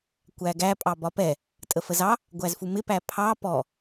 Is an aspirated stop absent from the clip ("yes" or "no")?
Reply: no